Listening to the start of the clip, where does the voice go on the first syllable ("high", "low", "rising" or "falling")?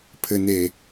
low